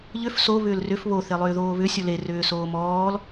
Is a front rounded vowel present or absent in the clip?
present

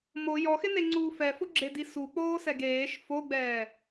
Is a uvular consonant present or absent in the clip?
absent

